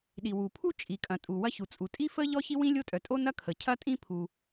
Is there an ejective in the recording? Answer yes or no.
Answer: yes